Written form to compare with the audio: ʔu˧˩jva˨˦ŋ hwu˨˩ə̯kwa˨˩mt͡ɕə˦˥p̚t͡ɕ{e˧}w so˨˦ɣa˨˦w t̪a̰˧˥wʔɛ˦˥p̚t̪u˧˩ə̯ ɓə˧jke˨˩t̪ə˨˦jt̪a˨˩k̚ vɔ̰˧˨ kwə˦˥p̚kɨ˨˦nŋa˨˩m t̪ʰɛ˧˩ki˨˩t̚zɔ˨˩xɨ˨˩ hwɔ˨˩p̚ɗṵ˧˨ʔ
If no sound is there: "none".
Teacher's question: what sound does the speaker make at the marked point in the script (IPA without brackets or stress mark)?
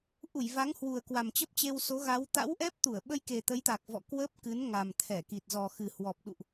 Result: e˧